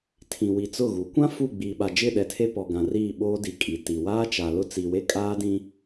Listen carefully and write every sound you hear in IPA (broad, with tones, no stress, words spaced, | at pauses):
tʰĩ˨wi˨t͡sʊ˦˨ɣu˨˦ kʷã˦ fu˦˨ɡ͡biː˨ɓa˨ d͡ʒɪ˦˨ɗɛ˨tʰe˦ pɔ˨ɡã˨riː˦˨ ɓoː˦di˨ kʼi˨ti˨ waː˦t͡ʃa˨ lʊ˦t͡si˨we˦kʼaː˦ dĩ˦